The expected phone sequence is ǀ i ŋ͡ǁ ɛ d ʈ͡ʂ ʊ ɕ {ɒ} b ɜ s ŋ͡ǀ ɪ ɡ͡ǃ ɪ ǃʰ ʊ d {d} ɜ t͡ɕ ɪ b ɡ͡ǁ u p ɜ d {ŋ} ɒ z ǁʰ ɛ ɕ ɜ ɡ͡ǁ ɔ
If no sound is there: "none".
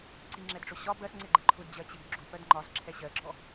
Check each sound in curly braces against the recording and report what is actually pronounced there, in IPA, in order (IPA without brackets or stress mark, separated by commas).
ɒ, d͡ʑ, ŋ͡ǃ